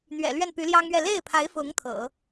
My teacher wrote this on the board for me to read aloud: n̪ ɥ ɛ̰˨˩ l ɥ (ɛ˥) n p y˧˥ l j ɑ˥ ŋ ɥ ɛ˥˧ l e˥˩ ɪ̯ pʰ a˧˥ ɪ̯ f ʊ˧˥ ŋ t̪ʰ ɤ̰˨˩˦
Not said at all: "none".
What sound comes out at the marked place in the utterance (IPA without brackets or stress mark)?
ɛ˥˩